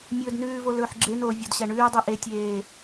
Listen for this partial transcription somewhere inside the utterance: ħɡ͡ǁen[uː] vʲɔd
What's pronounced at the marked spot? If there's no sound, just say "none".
oː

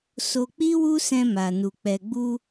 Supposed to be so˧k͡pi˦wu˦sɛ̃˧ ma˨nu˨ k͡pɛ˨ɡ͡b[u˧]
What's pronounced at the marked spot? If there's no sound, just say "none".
u˧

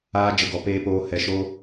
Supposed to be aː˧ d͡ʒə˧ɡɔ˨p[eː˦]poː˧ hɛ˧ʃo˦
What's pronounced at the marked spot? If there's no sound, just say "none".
eː˧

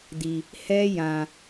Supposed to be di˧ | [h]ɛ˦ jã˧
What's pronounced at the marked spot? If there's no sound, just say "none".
h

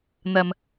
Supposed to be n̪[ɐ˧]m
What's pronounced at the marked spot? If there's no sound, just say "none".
ɐ˧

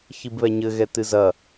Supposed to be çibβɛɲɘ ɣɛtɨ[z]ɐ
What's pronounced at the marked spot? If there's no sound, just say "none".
z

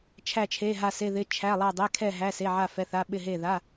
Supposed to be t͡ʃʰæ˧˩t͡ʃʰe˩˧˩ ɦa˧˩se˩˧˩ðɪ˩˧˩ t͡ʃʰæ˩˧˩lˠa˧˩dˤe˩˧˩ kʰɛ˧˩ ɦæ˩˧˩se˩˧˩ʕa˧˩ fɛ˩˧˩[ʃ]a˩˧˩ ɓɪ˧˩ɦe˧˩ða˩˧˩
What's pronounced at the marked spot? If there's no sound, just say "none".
θ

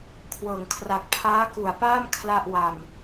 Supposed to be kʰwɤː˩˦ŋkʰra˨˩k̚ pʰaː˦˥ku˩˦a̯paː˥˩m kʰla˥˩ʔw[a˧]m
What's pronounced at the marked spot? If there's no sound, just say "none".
a˧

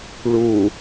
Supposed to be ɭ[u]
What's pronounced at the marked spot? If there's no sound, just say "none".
u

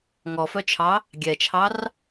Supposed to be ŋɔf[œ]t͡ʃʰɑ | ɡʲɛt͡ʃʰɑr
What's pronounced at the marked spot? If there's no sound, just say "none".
œ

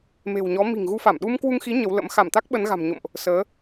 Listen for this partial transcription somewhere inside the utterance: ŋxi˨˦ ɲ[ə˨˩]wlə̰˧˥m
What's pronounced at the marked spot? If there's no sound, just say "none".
ə˨˦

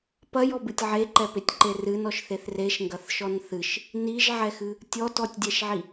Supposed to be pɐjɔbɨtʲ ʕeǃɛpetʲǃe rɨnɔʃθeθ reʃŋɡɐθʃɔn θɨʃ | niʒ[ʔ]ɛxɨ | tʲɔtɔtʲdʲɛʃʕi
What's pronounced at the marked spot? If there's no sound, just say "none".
ʕ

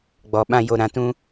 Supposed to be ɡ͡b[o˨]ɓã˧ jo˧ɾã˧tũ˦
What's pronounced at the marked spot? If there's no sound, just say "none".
ɔ˨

